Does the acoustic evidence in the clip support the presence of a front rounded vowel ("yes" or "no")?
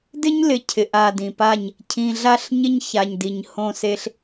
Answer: no